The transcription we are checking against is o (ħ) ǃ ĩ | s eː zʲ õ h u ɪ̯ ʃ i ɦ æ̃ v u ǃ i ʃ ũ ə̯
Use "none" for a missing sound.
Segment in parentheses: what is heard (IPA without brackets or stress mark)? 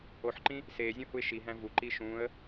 ħ